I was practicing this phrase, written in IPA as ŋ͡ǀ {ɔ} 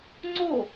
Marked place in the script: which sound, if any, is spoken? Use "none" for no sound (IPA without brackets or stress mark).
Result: o